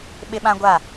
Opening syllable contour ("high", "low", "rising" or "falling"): high